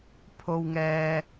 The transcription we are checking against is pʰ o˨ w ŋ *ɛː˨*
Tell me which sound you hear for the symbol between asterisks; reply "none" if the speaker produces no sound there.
ɛː˨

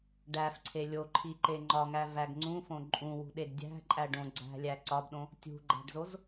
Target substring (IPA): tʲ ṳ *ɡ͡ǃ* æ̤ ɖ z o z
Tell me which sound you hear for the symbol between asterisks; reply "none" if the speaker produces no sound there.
ɡ͡ǃ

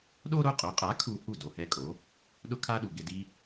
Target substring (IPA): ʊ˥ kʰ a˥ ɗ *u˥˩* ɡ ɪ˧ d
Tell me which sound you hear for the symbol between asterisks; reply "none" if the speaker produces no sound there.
u˩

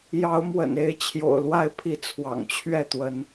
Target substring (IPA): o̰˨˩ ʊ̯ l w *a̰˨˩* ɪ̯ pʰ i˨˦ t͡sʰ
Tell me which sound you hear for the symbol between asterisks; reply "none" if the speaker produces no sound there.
a˦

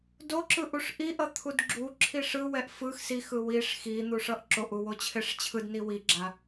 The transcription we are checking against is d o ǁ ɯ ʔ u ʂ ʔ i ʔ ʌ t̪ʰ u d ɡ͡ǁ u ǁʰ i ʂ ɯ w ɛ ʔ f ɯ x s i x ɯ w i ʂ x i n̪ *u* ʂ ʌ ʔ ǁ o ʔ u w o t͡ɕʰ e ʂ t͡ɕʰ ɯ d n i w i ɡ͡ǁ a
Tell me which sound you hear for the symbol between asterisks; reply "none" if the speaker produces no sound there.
u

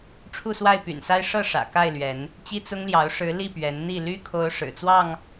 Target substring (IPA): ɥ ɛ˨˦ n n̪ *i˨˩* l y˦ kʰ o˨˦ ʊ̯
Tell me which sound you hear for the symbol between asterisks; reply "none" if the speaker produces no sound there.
i˥˨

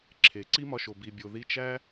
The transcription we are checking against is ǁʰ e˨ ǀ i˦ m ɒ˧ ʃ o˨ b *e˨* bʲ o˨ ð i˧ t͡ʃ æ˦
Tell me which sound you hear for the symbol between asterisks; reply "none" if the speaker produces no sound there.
i˨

